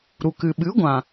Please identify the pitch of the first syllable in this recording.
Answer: low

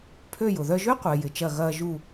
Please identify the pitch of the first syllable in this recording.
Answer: falling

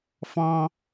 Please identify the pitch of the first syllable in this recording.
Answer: high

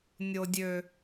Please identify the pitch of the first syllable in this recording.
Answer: low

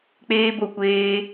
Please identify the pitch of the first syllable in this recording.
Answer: high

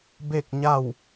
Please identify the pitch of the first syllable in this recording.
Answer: falling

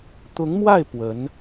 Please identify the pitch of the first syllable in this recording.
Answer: rising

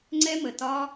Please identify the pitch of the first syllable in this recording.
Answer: high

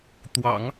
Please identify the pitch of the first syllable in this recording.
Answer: low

